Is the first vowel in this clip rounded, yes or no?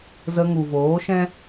no